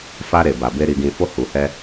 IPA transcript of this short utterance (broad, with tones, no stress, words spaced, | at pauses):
fa˧ɾe˨ ba˨be˧ ɾi˨ɡĩ˨fo˧ hu˨hɛ˧